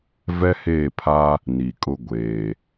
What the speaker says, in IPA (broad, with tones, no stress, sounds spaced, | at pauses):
v ɛ˦ h eː˦˨ pʰ a˦ | n i˨ kʼ ʊ˦ ɡʷ eː˨